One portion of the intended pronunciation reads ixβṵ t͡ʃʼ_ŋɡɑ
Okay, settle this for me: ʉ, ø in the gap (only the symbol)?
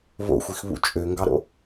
ø